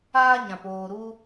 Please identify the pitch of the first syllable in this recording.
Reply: high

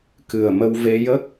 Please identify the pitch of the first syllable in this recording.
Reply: low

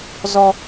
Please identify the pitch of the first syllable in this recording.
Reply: low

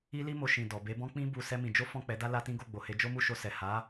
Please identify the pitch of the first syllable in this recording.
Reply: high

